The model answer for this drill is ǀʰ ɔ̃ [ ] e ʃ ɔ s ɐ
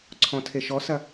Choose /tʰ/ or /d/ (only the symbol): tʰ